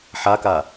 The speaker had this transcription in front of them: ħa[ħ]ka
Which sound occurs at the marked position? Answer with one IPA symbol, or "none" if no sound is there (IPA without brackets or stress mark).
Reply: none